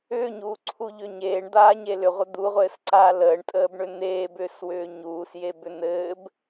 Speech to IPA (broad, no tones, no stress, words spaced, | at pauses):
ʏːɲuːǀʰuʎʏ ɲeːɳd̪aːɲe lʏʁʷə d̪uʁʷɘːsǀaː ləːɳtʼəːbɳʏ n̪eːbʏːswʏː ɲuːsjebʏ n̪ɘːb